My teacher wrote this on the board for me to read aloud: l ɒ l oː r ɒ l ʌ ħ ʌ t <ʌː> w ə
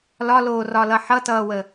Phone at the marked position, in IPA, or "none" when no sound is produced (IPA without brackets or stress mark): ʌː